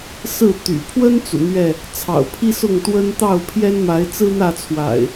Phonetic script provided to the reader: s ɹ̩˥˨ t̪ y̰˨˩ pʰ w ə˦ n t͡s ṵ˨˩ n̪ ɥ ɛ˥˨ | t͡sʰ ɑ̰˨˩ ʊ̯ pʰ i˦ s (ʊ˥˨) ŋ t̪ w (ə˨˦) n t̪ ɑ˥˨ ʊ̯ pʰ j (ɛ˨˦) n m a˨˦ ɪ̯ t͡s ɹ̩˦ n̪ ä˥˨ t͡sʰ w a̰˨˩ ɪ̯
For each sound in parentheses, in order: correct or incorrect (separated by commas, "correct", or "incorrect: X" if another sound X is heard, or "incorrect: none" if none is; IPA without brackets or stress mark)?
correct, incorrect: ə˦, incorrect: ɛ˦